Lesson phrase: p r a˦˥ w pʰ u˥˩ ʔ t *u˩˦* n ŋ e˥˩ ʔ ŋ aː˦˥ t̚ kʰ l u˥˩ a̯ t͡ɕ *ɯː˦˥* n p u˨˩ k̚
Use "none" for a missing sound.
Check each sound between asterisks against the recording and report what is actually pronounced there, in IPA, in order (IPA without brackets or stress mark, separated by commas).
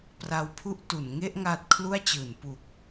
u˩˦, ɯː˩˦